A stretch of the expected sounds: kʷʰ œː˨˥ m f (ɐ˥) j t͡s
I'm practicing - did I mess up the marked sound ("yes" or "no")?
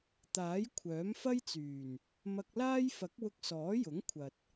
no